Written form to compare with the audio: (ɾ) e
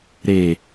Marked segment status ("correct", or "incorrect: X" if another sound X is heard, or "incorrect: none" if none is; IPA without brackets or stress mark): correct